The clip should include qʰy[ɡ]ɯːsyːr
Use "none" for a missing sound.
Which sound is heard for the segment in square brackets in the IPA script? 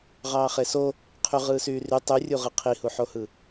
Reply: ʁ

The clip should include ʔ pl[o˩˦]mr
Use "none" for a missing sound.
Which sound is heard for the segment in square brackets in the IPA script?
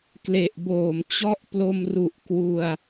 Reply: o˧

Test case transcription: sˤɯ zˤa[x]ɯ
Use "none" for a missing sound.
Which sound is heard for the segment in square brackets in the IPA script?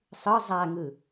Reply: ŋ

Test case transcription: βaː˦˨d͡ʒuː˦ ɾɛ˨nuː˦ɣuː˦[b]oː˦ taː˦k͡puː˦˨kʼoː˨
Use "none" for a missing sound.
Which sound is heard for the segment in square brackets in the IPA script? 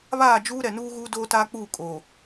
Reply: d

